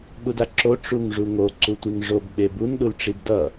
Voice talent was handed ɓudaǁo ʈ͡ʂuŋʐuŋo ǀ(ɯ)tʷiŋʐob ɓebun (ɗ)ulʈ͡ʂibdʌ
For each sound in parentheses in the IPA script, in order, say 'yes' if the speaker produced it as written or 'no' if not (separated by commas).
no, yes